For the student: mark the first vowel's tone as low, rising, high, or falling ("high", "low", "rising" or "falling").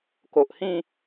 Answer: low